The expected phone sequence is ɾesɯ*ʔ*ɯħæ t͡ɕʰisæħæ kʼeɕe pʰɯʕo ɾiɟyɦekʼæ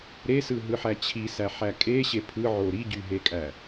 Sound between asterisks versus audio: incorrect: ɦ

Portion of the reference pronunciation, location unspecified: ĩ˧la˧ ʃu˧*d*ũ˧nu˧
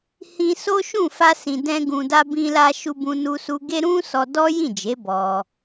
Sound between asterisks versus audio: incorrect: b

